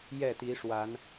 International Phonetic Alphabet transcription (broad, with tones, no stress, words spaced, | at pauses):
jɛ˥˨t̪i˨˦ʂwa˨˦n